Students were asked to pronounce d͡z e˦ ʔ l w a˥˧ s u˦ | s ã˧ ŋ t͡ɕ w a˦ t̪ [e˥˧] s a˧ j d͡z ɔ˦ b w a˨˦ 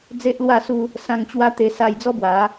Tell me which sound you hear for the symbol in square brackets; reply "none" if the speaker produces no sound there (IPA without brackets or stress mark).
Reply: e˧